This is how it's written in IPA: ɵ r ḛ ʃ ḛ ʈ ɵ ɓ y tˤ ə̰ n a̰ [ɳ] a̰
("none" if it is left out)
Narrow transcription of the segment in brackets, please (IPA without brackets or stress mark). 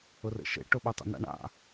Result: ɳ